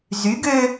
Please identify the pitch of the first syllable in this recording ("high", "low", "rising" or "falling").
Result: rising